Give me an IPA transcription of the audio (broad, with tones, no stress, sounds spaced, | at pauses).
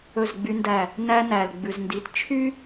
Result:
ɵ˦˨ z ɡ͡b y˦ n d æ˦˨ | n æ˦ n æ˨ l ɡ͡b ʉ˨ z n d i˨ t t͡ʃʰ y˦